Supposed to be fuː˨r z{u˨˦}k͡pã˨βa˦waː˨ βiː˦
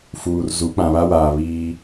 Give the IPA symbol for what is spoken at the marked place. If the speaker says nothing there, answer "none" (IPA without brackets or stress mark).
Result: u˨˦